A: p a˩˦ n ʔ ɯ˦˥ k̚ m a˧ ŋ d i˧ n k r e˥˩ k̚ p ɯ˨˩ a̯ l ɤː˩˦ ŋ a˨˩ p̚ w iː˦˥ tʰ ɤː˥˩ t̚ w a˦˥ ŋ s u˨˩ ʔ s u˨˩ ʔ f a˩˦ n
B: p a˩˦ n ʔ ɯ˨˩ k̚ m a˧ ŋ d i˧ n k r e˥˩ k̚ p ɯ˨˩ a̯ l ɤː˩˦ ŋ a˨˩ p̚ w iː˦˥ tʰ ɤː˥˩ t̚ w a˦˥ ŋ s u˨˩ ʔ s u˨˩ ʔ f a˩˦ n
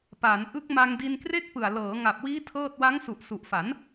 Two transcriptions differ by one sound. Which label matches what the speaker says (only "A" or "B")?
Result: A